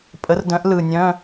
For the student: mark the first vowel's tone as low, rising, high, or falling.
rising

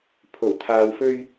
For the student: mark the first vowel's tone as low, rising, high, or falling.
low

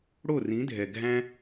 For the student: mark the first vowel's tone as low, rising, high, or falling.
falling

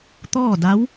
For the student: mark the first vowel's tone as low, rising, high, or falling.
falling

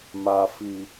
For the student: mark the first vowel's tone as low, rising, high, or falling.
low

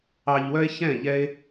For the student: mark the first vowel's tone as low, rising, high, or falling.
low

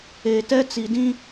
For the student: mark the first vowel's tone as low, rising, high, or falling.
low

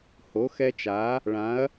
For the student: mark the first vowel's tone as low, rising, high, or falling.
rising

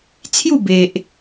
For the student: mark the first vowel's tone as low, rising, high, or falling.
falling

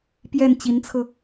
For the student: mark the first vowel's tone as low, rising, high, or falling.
falling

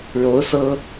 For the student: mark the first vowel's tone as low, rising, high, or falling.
rising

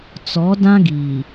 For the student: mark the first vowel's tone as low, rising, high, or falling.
rising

